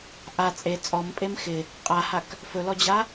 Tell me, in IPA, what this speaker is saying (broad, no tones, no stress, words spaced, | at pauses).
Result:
ʔa t͡sʼe t͡sʼɔmpʼem xɪ | qʼahak | fɵlɔd͡ʑa